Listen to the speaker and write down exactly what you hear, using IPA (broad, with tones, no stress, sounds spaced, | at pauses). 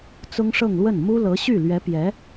t͡s ʊ˥ ŋ ʂ ɤ˥˧ ŋ l w ə˥˩ n m u˥ l ɤ˧˥ ɕ y˥˩ l ɥ ɛ˧˥ p j ɛ˧˥